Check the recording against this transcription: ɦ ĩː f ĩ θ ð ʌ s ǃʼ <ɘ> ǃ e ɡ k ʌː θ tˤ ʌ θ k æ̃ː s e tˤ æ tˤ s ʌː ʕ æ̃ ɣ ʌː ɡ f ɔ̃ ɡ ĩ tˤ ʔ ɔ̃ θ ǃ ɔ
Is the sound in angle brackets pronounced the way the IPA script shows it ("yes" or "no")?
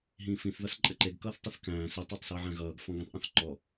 yes